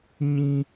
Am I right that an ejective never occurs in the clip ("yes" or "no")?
yes